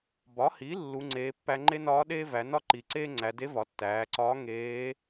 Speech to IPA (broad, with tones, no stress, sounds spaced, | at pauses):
b ɒ˩˧ h i˩˧ lː u˩˧ ŋ͡ǀ eː˩˧ pː æ˧ ŋ͡ǃ e˥ n ɒː˧˥ ɗ eː˥ v æ˩˧ n ɒ˥ ǃ i˩ ǀ eː˥ ŋ͡ǀ æ˩˧ d e˧˥ v ɒ˩˧ tː æː˩˧ ǀ ɒː˧˥ ŋ eː˧˥